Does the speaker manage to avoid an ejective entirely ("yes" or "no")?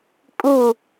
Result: no